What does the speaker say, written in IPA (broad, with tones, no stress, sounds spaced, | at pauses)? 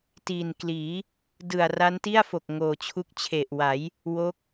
t iː˨˩ n k l iː˩˦ | d ɯ˨˩ a̯ r a˦˥ n t i˥˩ a̯ f o˨˩ k̚ ŋ oː˨˩ t͡ɕʰ u˦˥ k̚ t͡ɕʰ e˨˩ ʔ w a˩˦ j | w o˦˥ k̚